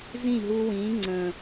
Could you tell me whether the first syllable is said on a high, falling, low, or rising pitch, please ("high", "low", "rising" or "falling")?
falling